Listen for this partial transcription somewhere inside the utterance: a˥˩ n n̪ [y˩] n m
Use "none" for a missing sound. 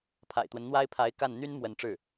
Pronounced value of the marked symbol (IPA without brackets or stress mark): y˥